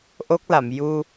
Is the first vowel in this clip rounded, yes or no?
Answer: yes